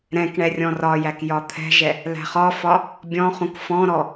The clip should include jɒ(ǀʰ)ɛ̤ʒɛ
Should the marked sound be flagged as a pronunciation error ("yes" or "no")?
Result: yes